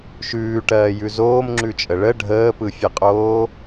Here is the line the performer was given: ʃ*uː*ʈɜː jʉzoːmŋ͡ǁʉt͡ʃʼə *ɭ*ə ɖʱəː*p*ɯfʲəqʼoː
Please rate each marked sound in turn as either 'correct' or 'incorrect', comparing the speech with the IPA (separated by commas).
incorrect, correct, correct